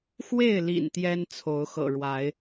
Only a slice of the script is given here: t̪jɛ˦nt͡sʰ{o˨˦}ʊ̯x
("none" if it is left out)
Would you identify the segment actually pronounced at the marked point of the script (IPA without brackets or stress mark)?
o˨˦